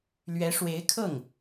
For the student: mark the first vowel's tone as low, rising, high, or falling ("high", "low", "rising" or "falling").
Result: rising